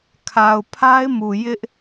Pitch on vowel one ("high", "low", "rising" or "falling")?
low